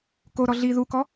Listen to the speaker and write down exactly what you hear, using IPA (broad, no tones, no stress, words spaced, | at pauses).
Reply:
koɾɔ ɮi ðukɔ